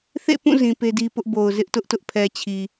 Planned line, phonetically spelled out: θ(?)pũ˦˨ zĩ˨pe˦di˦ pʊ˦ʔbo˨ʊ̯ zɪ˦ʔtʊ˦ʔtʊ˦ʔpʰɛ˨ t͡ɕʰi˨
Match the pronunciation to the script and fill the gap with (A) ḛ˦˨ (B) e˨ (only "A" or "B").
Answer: A